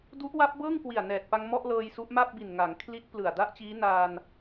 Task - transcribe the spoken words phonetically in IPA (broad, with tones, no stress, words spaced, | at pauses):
du˦˥ʔwa˦˥p̚bɤː˥˩ŋkwi˨˩a̯ nɛː˨˩t̚pa˧ŋ mɔ˥˩ʔ lɤː˧jsu˦˥ʔma˥˩p̚ bi˨˩nŋa˩˦ŋkʰli˦˥t̚ plɯ˨˩a̯da˥˩ʔt͡ɕiː˦˥ naː˧n